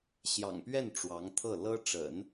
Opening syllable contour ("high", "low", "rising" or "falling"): low